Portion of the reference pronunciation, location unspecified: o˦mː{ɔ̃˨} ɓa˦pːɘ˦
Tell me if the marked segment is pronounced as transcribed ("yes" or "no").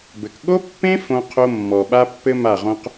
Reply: no